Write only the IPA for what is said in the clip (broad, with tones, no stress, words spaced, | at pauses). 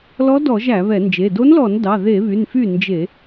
lɔ˧˥dɔ˧˩˧ʒ æ˧˩˧βɛ˧˩˧nd͡ʒe˩˧˩ do˧˥nlɔ˧˩˧n dɑ˩˧˩ðe˧˩˧βy˩˧˩n fy˥˩nd͡ʒe˧˩˧